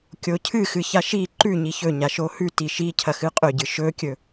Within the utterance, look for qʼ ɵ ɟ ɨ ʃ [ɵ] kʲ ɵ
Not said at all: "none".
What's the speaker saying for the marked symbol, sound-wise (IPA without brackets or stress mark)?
ɵ